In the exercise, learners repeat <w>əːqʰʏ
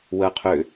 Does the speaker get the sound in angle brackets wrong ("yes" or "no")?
no